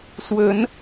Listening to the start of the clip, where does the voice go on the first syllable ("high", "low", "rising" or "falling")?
rising